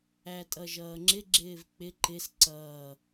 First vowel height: low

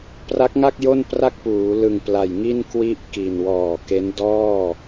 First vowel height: low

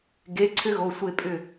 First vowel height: mid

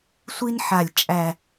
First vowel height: high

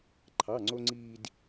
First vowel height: low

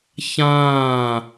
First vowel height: low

